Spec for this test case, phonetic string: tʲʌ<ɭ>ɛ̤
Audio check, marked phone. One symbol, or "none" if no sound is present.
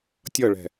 ɭ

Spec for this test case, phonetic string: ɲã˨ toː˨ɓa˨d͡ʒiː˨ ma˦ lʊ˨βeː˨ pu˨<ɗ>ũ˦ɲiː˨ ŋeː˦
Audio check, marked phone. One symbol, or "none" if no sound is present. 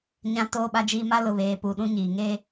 ɗ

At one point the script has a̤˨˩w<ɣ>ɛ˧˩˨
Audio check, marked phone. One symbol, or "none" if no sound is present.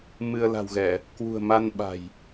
ɣ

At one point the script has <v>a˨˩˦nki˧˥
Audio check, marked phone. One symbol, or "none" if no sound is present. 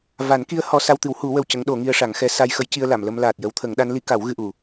v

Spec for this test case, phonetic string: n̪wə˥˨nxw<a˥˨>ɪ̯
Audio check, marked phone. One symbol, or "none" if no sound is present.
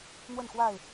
a˥˨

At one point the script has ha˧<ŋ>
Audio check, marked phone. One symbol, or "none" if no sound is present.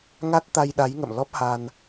n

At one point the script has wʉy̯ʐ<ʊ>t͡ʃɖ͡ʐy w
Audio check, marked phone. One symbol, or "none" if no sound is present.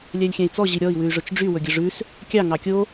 ɵ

